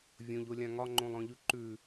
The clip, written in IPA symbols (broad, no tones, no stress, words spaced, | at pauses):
vʲõʎolʲã ŋɒŋ͡ǃõlˠɔ̃ʎʉ ǃʉ